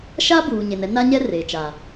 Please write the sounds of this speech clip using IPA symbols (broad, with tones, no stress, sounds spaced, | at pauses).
ʃ a˦ b uː˨ ɲ e˨ n ɛ˦ n a˦ ɲ ɛ˦ r e˨ t͡ʃ a˨